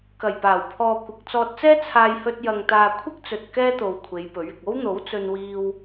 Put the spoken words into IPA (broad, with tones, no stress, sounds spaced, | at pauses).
k ɐ˨˩ j p aː˨˩ w pʰ ɔː˨ kʷ ɪ˨ k̚ t͡s ɔː˧ t̚ t͡s ɛː˥ t͡sʰ aː˧ j h ɵ˧ t̚ j ɐ˨ ŋ t̪ aː˨ kʷʰ ɪ˥ k̚ t͡s ɵ˨ t̚ k ɛː˥ t̪ o˨ w kʷʰ e˨˧ j p ɵ˨˥ ɥ ɪ˨ k̚ o˥ w n̪ o˨˥ w t͡s ɵ˧ n w iː˧ w